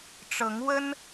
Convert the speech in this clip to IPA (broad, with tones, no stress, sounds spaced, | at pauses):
ʈ͡ʂ ɤ˨˦ ŋ w ə˦ n